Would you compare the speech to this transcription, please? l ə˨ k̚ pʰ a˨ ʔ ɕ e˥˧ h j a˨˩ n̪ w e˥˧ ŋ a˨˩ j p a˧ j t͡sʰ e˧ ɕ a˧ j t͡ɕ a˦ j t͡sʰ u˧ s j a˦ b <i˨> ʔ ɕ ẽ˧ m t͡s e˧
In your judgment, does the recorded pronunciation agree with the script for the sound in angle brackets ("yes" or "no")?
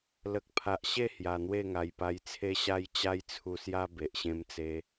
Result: no